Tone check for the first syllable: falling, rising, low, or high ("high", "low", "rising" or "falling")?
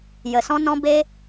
low